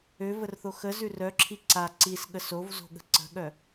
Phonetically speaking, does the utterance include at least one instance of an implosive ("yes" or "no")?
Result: yes